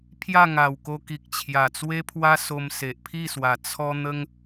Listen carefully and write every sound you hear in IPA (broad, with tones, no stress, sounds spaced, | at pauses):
pʰ j a˥˧ ŋ a˨˩ w k o˧ k i˨ k̚ t͡ɕʰ j a˨˩ t͡s w e˦ pʰ w a˦ s o˧ m s e˨ ʔ pʰ i˥˧ s w a˨˩ t͡sʰ ɔ˧ n̪ ə˧ ŋ